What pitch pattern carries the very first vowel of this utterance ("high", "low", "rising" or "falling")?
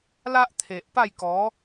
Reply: high